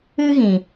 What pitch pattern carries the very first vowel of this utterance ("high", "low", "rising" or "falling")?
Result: high